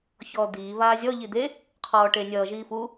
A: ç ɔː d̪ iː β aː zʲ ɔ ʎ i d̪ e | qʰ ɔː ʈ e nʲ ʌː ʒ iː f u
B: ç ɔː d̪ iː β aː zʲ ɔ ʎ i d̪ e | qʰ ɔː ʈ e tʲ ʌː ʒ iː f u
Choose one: A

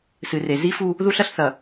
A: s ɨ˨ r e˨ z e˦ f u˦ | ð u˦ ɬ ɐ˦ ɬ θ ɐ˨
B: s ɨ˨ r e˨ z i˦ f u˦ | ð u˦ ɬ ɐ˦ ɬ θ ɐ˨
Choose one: B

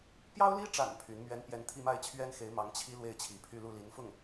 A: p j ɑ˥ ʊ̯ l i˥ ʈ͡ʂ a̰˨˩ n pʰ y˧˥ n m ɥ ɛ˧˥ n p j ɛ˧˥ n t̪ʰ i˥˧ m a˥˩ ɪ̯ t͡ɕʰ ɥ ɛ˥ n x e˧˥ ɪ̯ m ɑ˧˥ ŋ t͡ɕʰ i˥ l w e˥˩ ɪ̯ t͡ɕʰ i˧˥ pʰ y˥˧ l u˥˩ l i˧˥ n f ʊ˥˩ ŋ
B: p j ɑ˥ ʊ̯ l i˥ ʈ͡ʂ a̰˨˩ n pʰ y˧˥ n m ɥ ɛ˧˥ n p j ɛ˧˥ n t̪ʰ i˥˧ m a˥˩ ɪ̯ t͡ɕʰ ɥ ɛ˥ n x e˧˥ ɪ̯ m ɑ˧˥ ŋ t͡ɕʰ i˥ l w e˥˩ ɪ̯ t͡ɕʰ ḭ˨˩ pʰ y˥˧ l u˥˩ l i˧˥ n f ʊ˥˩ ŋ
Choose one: A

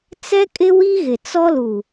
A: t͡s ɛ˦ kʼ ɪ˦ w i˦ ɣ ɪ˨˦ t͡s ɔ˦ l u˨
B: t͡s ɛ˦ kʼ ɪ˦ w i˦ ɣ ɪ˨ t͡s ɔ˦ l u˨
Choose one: B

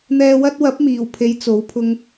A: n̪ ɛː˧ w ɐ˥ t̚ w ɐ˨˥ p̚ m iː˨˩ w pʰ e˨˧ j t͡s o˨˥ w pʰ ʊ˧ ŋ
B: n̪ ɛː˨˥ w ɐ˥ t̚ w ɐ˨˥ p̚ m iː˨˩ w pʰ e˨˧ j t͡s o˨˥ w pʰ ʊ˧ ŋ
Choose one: A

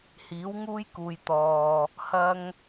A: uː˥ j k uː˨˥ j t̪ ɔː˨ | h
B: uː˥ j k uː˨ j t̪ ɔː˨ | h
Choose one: B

